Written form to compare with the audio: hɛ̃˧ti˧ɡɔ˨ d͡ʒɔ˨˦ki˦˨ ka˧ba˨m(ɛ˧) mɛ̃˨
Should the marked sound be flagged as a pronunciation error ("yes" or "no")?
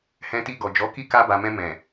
yes